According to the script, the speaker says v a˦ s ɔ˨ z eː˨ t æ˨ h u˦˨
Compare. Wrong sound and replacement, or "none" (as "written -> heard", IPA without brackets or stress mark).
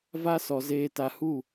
æ˨ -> a˨